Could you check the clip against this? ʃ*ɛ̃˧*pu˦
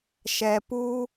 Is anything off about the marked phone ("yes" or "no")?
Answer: yes